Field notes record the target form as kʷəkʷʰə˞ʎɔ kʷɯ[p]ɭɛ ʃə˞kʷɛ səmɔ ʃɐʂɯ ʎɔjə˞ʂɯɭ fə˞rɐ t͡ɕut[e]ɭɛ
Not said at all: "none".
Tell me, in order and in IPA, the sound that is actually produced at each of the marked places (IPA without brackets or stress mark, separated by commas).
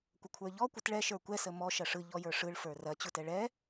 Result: t, ɛ